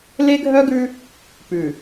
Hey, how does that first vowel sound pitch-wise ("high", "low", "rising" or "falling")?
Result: high